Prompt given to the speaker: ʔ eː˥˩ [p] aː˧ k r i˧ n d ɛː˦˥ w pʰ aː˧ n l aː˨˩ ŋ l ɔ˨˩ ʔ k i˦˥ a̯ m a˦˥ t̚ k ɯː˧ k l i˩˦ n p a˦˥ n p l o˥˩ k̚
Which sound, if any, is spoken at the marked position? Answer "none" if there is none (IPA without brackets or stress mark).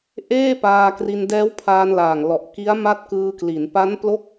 p